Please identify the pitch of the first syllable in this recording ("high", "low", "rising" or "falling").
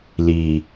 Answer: low